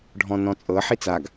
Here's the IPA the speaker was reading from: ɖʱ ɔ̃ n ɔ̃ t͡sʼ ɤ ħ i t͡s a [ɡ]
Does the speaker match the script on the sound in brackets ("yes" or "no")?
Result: yes